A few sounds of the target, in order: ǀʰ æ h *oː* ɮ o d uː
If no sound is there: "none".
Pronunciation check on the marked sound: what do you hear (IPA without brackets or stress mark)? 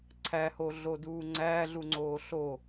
o